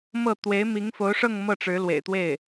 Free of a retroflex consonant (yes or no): no